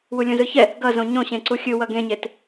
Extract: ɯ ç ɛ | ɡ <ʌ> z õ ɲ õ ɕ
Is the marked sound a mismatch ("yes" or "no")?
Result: no